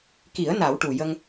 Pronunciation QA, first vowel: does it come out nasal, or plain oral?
oral